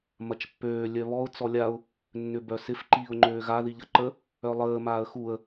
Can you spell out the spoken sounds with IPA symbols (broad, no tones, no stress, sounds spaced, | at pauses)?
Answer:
m ɐ t͡ʃ pː øː lʲ œ β ɔ ʊ̯ t͡s ɔ lʲ a ʊ̯ | nː ʏ b œ s ɪ f ǃ iː ʊ̯ ŋ͡ǃ øː ɣ a ð i ʎ ɐ ǃ ə | œ lˠ əː m aː ə̯ x u ə̯